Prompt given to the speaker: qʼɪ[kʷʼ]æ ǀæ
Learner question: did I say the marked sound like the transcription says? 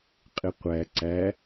no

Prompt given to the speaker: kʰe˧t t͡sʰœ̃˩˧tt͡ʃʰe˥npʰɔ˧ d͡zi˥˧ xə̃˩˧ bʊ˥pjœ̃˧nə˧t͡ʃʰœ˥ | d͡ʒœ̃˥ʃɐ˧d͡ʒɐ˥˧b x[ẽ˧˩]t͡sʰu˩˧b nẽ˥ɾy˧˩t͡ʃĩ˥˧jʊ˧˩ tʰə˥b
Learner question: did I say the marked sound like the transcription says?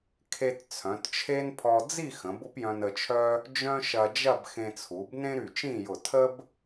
no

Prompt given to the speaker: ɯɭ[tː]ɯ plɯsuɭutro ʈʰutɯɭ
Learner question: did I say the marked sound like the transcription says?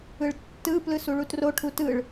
yes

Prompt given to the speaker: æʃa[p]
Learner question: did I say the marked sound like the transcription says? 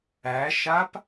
yes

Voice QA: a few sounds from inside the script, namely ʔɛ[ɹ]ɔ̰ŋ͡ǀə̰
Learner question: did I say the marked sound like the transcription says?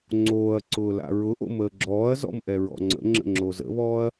yes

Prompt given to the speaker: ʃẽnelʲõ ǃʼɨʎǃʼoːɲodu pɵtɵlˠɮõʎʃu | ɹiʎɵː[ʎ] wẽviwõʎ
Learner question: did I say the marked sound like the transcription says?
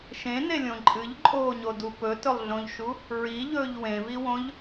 yes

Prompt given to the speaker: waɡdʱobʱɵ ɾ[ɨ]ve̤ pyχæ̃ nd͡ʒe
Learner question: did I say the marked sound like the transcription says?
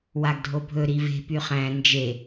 no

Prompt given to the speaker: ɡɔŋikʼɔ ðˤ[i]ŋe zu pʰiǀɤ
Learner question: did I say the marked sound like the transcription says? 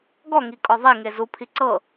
yes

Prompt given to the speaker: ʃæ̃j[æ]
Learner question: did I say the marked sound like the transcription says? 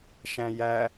yes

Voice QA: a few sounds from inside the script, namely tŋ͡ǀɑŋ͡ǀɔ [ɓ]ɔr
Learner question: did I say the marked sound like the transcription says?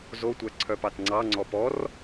no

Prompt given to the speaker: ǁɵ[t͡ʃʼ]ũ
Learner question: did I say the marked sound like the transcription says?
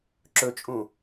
yes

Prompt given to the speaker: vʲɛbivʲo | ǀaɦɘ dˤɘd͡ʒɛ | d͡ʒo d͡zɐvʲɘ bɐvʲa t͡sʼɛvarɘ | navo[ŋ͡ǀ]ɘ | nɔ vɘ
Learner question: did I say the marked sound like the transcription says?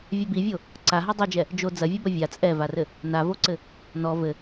no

